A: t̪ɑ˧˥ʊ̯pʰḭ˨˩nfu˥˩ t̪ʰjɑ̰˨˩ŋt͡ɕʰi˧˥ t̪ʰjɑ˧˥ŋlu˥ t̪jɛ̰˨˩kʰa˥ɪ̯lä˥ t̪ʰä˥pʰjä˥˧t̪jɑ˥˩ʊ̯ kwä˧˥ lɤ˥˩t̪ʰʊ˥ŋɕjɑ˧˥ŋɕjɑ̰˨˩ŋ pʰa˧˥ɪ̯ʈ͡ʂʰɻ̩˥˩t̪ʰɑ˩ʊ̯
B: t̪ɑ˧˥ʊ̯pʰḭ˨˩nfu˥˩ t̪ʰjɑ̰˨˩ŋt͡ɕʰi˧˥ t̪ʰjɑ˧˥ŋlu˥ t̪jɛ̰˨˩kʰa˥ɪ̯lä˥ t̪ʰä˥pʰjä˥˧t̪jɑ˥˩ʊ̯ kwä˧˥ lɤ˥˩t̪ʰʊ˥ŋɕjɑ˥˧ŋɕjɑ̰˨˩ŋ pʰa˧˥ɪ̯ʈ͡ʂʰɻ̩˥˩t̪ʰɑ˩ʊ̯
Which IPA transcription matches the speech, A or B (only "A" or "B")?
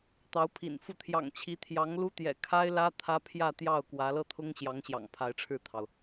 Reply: A